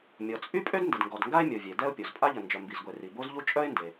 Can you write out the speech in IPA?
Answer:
mʲ ɔ˩ t͡sʼ y˥ pʼ ø˥ d n d ə˩ d ŋ ɡ ɔ˩ d ŋ ɡ a˥ ɪ̯ mʲ o˩ vʲ e˩ d ɛ˥ ʊ̯ pʲ o˩ z pʼ a˥ ʎ ə˩ n d͡ʒ œ˩ m b i˩ z ɡʷ e˩ r i˩ b o˥ z ʎ u˥ t͡ʃʼ œ˥ ɪ̯ n d e˩

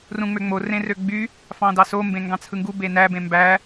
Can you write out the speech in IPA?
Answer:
r ũ ŋ͡m ø ŋ͡m o r ẽ r ø ɡ͡b y | f ɑ̃ d ɑ s o m b ẽ ŋ ɡ ɑ̃ t͡sʰ ɯ ŋ ɡ u b e n æ b ẽ m b æ

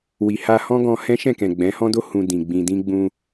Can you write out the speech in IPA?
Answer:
w i˨ h a˧ h ɔ̃˦ ɡ ɔ̃˧ h ɛ̃˦ ʃ ɛ̃˦˨ k ɛ̃˨ ɡ͡b ɛ̃˨˦ h ɔ̃˦ d o˦ h ũ˧ d ĩ˨ ɡ͡b ĩ˨ d ĩ˧ ɡ͡b ũ˧

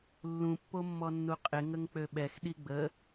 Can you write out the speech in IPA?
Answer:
lː ũ pː o mː ɔ nː u qʼ ɪ ŋ ə ŋ k͡p ø ɓ ɛ x ɗ i ɡ͡b ə

